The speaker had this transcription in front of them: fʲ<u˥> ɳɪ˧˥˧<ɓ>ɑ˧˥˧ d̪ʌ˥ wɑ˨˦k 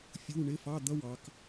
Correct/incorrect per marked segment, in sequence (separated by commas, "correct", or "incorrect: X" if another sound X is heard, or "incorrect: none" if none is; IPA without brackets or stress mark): incorrect: u˧˥˧, incorrect: f